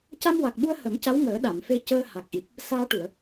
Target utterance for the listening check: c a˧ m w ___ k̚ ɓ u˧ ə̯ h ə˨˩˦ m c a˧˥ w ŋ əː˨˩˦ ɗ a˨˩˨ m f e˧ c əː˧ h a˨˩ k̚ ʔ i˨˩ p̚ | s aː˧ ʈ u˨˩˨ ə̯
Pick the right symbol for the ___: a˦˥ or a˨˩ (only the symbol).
a˨˩